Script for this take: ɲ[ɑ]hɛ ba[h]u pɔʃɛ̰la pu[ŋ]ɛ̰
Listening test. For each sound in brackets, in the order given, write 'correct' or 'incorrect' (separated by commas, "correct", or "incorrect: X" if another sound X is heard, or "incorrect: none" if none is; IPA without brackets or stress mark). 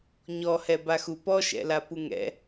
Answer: incorrect: ɔ, incorrect: x, correct